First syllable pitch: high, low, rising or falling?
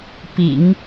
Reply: low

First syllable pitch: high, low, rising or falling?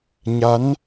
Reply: rising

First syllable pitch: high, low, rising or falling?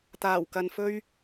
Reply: low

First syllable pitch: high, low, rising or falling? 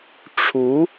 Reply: rising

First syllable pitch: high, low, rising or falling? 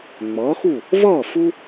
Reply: rising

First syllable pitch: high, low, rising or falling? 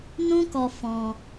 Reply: high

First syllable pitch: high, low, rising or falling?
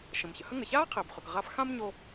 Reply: low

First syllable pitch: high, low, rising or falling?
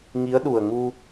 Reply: rising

